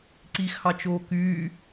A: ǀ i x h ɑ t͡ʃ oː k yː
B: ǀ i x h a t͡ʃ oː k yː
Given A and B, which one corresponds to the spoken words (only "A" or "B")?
A